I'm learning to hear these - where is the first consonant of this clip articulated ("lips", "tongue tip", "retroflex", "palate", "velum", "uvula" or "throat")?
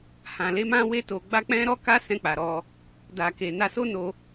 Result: throat